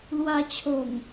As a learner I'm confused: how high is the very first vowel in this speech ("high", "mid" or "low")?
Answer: low